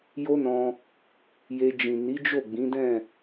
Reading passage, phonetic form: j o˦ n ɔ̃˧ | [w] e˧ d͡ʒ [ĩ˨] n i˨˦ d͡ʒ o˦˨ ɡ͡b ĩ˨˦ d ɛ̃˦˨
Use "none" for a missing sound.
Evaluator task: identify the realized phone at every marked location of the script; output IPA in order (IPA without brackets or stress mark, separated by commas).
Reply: j, ĩ˨